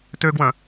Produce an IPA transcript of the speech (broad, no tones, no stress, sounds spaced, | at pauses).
t ø ɡ w œ̃